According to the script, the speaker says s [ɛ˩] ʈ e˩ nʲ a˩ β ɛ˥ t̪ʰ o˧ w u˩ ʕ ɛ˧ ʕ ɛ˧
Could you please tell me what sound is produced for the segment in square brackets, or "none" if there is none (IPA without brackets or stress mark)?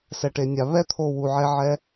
ɛ˩